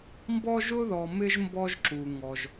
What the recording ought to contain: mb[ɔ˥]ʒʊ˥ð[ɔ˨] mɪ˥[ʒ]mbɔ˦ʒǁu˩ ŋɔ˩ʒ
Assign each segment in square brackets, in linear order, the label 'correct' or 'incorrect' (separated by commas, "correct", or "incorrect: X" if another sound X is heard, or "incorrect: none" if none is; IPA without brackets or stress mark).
correct, correct, correct